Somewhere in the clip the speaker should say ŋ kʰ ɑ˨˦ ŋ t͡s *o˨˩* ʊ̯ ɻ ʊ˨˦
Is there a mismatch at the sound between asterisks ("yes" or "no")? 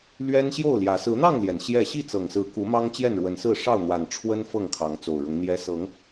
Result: no